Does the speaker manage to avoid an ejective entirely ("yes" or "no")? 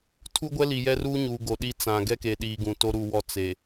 yes